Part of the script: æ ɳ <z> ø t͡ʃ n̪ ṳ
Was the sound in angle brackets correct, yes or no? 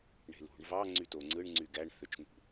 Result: no